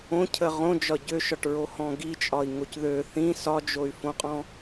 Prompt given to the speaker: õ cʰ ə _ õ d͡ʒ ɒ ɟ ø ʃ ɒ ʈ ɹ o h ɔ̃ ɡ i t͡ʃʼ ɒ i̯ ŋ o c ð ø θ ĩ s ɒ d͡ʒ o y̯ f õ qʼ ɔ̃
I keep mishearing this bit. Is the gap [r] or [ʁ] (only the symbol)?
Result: ʁ